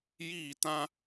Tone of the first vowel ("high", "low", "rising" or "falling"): falling